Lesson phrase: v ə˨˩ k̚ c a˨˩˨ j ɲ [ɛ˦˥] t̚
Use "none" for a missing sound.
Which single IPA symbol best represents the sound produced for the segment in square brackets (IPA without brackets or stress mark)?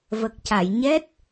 ɛ˦˥